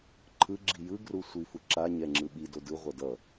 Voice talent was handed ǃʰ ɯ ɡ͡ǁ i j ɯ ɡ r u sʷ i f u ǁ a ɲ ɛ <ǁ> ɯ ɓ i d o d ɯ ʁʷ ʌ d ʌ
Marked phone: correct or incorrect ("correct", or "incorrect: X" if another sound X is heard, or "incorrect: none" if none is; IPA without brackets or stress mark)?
incorrect: ŋ͡ǁ